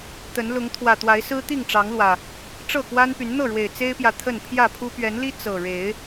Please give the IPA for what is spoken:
t̪ ə˨˦ n l ʊ˨˦ ŋ t̪ʰ w ä˨˩ t̪ w a˨˦ ɪ̯ s ɹ̩˦ t̪ i˥˨ ŋ ʈ͡ʂ ɑ˨˦ ŋ l w ä˨˩ | ʈ͡ʂ ɤ˥˨ k w a˦ n p y˨˦ n n̪ ɤ˥˨ ɻ w e˨˩ ɪ̯ t͡s e˦ ɪ̯ p j ä˨ t̪ʰ ə˥˨ n pʰ j ä˥˨ pʰ u˦ p ɥ ɛ˨˦ n l i˦ t͡s ɤ˨˩ ɻ e˨˦ ɪ̯

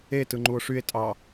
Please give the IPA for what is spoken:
e t ɯ ŋ͡ǃ u o̯ ʂ y e̯ tʼ ɑ

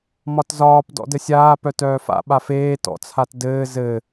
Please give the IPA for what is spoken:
m ɒ t z ɒː p d ɔ̰ d ɘ sʲ aː p œ t œː f a̰ ɓ a f eː t ɔ̰ t͡sʰ a t d ɘː z ɘ

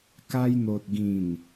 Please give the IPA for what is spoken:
k a˧ j n̪ o˨ t̚ ɡ ĩ˨˩ n

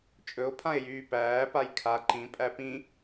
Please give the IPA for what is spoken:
t͡ʃʼ ɵ o̯ pʰ ã e̯ j yː p æː p a j kʰ a ǃ ĩ pʼ æ p ĩ

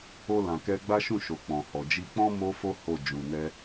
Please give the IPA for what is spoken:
o˧ l ã˨ k ɛ˧ ɡ͡b a˦ ʃ ũ˦˨ ʃ o˨ k͡p ɔ̃˨ h ɔ˨ d͡ʒ i˧ k͡p ɔ̃˦ m o˦ f o˦ h o˦˨ d͡ʒ ũ˨ n ɛ˧

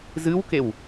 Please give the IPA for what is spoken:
z ɨ w k e w

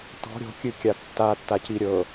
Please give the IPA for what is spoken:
t ɔ̤ ɾʲ ɔ̤ kʲ ɨ kʲ a tː a tː a c i ɾʲ ɤ

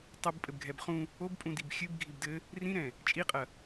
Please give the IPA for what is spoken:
tˤ ɨ b pʼ ɘ b ɡʱ ɛ b χ ũ | o b pʼ ũ d i b xʲ ɨ b ɡʱ i b d ɘ | r ĩ ɾ ɛ̃ | t͡ʃʼ i qʼ ɐ

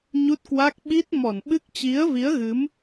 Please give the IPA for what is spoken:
ɲ u˦˥ t̚ k w a˦˥ k̚ ɓ i˦˥ t̚ m ɔ˧˩ n ɓ ɨ˦˥ k̚ t͡ɕ i˨˦ ə̯ v i˨˦ ə̯ ɣ ɨ˨˦ m

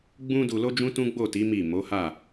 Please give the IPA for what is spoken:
ɡ͡b ũ˧ d u˨ l o˧ d͡ʒ ũ˦ t ũ˦ ɡ͡b o˦˨ t i˨˦ m i˦˨ m o˨˦ h a˦˨

